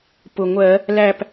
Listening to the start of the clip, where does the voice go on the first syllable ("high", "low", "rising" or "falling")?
low